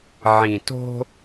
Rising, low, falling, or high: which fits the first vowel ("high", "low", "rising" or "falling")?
low